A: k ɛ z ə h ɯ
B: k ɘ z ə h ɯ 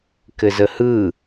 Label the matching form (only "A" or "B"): B